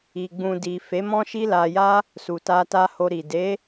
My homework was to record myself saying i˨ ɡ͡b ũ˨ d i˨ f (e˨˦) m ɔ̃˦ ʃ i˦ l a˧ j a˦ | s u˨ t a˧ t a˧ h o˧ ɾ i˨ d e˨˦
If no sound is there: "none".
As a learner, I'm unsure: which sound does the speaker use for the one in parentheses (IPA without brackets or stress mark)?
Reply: e˨˦